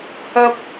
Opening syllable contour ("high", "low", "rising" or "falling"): high